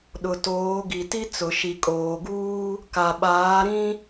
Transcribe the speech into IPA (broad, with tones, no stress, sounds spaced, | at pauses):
ɗ ʊ˨ t oː˨˦ ɡ i˨ t i˦ t͡s ʊ˨ ʃ i˨ kʼ oː˨ ɡ uː˦ | k a˨ ɓ aː˨˦ ɾ ĩ˦